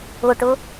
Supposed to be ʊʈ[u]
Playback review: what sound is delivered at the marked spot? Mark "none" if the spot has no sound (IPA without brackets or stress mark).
ʊ